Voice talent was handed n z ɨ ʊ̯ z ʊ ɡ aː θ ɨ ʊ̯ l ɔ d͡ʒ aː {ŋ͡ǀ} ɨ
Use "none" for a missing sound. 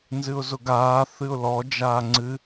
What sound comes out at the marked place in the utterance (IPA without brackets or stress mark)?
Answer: ŋ͡ǀ